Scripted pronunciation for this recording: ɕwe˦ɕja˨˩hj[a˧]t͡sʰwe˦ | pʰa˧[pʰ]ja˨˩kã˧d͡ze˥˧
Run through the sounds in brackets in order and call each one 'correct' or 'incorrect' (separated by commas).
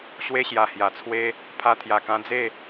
incorrect, incorrect